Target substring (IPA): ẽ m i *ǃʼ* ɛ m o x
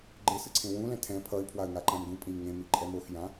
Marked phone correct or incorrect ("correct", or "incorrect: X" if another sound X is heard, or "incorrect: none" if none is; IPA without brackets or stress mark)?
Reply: correct